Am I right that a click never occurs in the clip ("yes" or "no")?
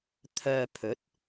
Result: yes